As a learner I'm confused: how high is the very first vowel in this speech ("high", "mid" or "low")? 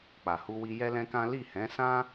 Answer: low